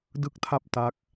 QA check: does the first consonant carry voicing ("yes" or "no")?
yes